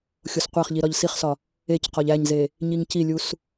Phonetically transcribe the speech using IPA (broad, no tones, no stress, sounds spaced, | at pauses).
xʲ o s qʷ æ χ ʎ i ɾ ɒ ʎ s i χ s ɒ | e c q ɒ ʎ æ ɲ z e | ɲ i ŋ c i lʲ u s